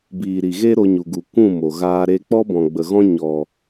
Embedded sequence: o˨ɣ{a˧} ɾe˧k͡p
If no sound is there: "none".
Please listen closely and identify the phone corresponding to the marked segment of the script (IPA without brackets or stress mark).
aː˧